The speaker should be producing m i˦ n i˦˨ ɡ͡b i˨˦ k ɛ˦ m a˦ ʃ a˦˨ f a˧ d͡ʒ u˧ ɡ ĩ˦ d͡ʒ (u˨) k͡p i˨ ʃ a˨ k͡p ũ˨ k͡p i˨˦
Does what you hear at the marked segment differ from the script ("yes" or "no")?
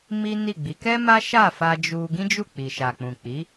yes